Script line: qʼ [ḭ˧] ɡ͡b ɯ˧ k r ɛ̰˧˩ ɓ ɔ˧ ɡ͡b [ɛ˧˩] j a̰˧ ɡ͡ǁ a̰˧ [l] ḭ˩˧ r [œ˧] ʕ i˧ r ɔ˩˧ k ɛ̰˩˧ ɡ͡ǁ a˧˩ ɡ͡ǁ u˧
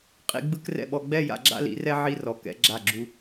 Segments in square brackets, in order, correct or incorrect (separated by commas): correct, incorrect, correct, incorrect